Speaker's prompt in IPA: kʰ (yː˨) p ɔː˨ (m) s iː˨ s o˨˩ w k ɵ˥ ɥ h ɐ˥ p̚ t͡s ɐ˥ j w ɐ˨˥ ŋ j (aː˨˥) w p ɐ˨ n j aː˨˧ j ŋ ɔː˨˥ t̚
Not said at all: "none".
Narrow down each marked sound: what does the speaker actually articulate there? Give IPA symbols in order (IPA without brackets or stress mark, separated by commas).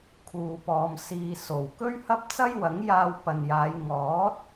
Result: uː˨, m, aː˧